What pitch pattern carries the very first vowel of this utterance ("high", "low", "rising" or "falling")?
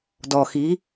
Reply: low